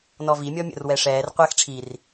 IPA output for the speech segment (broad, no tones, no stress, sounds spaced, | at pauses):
n ɔ v i mʲ ɔ mʲ ə̰ r w ɛ ʂ ɛː r qʷ ɛ x ʈ͡ʂʰ i r